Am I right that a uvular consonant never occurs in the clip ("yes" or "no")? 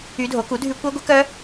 yes